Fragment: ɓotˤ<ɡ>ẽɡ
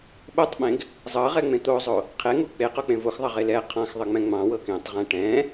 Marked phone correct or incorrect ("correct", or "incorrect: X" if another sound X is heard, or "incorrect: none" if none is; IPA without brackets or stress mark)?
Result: incorrect: ɓ